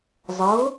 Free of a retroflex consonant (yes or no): yes